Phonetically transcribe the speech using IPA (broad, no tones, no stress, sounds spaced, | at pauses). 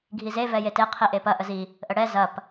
ɡʱ i z e v ɛ j e t e qʰ i ʔ e p ɐ ʔ ə z i | ʔ ə ɽ ɛ z ɐ p